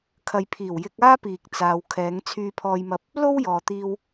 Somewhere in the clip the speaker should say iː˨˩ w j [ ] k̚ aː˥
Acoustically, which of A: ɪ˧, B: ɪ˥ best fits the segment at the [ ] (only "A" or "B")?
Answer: A